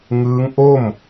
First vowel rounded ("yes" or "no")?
no